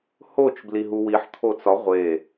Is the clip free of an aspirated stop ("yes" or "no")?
no